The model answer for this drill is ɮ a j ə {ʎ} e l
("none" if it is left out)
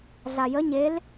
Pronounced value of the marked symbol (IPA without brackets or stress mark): ɲ